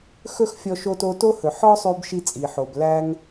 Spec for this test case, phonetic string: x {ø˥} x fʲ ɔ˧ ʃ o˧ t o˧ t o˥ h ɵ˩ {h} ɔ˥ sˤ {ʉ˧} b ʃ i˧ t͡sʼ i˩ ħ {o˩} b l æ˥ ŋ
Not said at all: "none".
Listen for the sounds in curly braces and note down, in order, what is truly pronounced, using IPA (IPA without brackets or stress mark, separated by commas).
ɵ˥, ħ, ʉ˧, o˩